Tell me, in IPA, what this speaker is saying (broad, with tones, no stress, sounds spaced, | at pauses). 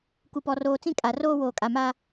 k u˨ p ɔ˨ r oː˨ t͡s ĩ˦ kʼ a˨ r oː˦ w oː˨ kʼ a˨ m aː˦